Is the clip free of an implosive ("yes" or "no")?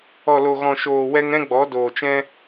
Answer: yes